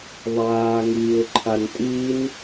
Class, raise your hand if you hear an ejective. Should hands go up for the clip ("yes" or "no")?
yes